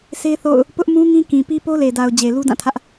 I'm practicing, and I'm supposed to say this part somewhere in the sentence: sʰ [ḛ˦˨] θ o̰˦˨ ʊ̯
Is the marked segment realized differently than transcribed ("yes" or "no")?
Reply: yes